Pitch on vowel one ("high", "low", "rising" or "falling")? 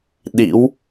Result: rising